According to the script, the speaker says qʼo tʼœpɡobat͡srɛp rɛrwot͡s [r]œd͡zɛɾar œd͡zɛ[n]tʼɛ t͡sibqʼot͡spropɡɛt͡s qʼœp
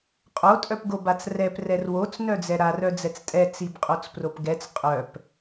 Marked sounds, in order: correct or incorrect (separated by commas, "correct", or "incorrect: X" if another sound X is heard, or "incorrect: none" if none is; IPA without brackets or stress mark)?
incorrect: n, incorrect: t͡s